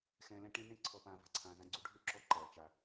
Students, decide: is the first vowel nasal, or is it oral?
nasal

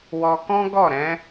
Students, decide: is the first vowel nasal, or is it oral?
oral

